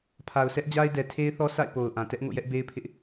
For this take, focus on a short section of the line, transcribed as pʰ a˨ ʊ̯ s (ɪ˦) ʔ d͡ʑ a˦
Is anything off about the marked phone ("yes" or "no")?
yes